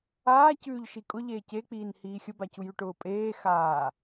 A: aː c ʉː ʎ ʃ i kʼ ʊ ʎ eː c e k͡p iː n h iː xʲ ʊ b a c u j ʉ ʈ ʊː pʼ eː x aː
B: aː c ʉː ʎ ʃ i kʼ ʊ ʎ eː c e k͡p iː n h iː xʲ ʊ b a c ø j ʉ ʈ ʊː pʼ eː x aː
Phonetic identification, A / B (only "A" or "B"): A